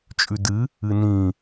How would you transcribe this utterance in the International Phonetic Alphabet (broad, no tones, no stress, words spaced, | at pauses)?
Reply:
t͡ʃʼʉdɨ | ɨnĩ